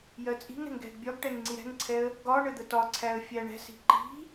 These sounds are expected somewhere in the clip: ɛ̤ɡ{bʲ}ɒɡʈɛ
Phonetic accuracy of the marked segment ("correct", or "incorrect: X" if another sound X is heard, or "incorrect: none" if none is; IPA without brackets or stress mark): correct